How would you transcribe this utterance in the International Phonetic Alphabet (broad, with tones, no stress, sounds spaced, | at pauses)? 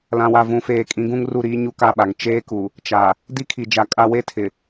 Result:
l ã˨ w a˨ v ũ˨ f eː˨ kʼ ĩ˨˦ ɡ ũ˦ ŋ r u˦˨ ɾ iː˦ ɲ u˦ k a˦˨ ɓ a˨ ŋ t͡ʃ eː˦ k u˨ | t͡ʃ a˨ | d i˦ kʰ i˨ d͡ʒ a˨ kʼ a˦ w e˦ tʰ ɪ˨